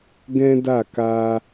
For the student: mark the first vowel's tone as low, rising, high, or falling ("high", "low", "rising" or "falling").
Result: high